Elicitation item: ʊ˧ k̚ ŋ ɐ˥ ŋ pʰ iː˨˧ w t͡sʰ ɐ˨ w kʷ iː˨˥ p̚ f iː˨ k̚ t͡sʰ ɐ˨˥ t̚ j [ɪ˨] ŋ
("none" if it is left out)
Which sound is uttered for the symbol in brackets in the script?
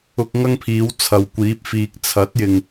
ɪ˨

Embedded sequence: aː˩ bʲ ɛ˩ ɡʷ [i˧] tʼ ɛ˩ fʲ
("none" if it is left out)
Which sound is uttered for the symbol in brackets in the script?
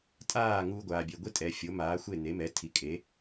i˥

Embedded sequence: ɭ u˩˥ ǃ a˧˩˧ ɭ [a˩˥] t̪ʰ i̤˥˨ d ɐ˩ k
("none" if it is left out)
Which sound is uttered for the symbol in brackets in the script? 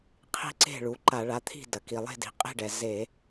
a˩˥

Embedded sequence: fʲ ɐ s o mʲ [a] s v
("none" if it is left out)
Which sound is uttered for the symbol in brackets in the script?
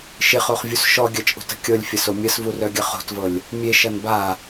ɐ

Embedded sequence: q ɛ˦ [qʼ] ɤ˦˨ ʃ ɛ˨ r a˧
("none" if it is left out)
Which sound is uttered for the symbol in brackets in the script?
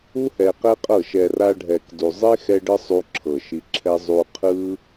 qʼ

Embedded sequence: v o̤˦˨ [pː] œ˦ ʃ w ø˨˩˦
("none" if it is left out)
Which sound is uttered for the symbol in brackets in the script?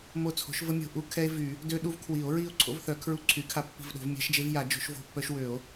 pː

